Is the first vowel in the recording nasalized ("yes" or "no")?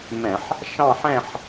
yes